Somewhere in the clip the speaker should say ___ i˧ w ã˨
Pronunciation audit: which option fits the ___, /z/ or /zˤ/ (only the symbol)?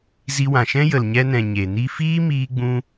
z